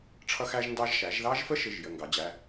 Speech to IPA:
ʈ͡ʂʰ ʌ˦ x æ˦ ʒ n d ɑ˦ ʒ ʃ æ˩˧ ʒ ð ɑ˦ ʒ f ə˦ ʃ ɪ˩˧˩ ʒ j ə˩˧˩ ŋ ɡ ɑ˩˧ d͡ʑ æ˩˧˩

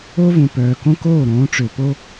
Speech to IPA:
o˦ v ũ˨ p œː˨ k õ˦ k oː˦˨ ɾ õː˨˦ ʈ͡ʂ ø˨ p o˦

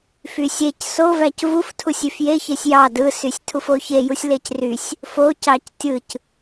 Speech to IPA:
f y sʲ e c s o v æ c v u f tʰ u sʲ y f j e ç e sʲ j ɑ d ɯ s y sʲ tʰ u f o ç e j u sʲ l e c r y sʲ | f o c ɑ c tʲ ɯ c

